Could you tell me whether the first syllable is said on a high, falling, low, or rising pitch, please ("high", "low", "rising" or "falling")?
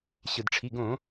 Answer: low